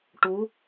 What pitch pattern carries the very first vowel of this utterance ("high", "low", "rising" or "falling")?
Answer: rising